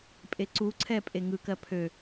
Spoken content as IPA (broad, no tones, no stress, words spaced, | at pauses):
pʼeǀuǀʰɛ pʼeŋɯkɜ pʰø